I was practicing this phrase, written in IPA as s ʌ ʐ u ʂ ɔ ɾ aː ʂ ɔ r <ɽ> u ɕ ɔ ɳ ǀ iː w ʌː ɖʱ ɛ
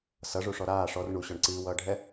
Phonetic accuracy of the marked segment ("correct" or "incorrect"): incorrect